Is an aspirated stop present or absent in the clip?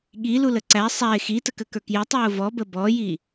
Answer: absent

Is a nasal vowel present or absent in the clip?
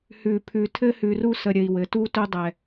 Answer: absent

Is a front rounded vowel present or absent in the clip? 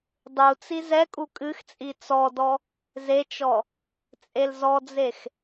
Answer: absent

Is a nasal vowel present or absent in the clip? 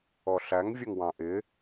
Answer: present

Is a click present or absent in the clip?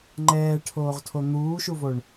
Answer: present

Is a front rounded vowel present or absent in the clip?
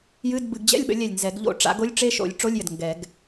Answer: absent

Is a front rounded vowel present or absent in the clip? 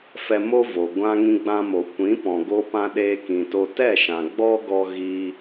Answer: absent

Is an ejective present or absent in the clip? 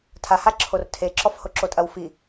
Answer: present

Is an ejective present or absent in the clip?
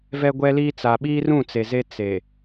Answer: absent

